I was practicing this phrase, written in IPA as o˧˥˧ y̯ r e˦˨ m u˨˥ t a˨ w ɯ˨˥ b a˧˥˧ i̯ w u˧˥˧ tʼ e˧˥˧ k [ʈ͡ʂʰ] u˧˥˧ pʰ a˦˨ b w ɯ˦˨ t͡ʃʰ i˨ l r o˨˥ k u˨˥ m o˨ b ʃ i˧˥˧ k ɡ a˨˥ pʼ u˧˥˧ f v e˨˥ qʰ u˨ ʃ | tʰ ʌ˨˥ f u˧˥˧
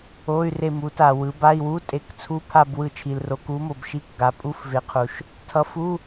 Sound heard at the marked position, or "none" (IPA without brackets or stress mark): t͡sʰ